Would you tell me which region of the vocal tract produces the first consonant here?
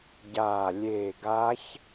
palate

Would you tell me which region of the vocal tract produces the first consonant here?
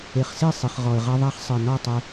uvula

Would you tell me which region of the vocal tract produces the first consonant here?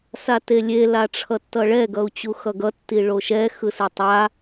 tongue tip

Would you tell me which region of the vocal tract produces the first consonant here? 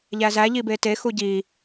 palate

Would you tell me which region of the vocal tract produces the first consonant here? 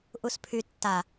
throat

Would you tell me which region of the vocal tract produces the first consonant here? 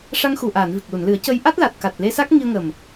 retroflex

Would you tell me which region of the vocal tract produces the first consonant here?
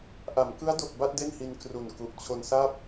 throat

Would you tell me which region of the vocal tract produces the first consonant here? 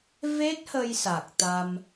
lips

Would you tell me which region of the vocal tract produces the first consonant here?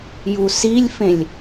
palate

